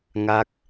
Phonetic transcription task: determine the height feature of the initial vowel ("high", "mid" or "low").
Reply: low